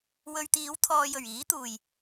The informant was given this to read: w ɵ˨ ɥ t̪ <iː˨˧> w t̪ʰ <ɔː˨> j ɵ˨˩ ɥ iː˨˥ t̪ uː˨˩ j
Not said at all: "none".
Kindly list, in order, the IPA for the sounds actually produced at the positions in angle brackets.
iː˨˧, ɔː˨

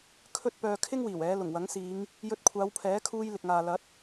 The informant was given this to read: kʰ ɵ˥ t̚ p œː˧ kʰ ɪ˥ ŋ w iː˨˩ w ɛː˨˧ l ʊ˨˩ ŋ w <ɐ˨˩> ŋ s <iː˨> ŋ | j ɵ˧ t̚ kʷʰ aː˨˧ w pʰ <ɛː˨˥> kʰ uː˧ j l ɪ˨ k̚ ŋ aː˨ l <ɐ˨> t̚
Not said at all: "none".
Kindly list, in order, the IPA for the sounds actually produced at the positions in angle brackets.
ɐ˨˥, iː˨˧, ɛː˨˥, ɐ˨˥

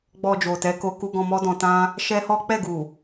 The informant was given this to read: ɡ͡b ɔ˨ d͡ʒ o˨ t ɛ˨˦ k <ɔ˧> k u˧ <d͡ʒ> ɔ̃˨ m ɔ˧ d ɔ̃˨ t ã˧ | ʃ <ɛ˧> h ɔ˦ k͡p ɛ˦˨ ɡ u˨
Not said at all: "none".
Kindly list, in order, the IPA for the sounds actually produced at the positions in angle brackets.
o˧, ɡ, ɛ˦

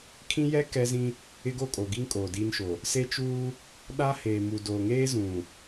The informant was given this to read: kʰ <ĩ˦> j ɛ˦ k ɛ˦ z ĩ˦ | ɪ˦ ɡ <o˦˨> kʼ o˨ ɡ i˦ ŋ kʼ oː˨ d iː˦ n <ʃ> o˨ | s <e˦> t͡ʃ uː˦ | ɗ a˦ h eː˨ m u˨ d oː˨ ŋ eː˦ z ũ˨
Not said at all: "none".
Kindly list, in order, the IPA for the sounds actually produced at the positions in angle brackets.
ĩ˦, o˦˨, ʃ, e˦

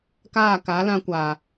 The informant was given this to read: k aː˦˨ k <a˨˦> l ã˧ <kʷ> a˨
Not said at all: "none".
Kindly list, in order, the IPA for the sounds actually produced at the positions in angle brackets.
a˨˦, kʷ

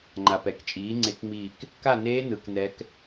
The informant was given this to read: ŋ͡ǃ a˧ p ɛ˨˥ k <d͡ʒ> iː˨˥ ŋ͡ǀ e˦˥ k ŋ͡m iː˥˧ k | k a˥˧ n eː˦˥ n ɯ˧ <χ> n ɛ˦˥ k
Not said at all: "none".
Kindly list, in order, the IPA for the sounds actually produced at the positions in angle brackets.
t͡ʃʼ, k

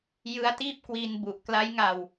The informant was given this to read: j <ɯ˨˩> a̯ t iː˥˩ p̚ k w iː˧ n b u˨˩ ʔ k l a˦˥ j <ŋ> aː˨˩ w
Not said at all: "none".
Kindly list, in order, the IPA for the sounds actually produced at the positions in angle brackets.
ɯ˦˥, ŋ

